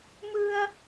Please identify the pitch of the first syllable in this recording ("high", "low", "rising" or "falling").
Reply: high